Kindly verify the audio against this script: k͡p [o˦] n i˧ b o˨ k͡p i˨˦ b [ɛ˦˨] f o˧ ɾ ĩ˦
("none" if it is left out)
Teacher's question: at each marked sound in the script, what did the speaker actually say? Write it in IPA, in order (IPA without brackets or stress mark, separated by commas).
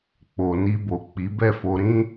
o˨, ɛ˦˨